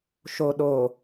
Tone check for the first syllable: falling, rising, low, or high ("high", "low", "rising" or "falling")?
low